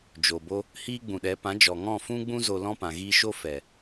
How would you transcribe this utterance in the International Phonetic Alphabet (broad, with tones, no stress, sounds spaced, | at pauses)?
d͡ʒ o˨ b o˦ | h iː˦ ɡ͡b ũ˨ ɗ ɛ˨˦ p ã˨˦ d͡ʒ ɔ˨ ŋ ɔ̃˦˨ f ũ˦ ɡ͡b ũ˦ z o˧ l ɔ̃˦ p ã˨ ɣ iː˧ ʃ o˦ f ɛ˨